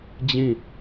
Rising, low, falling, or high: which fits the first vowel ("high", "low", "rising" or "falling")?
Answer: falling